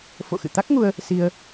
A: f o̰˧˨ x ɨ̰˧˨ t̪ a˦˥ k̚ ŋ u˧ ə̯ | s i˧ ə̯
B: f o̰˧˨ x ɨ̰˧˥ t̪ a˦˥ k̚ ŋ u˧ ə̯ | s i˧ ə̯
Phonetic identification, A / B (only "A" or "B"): A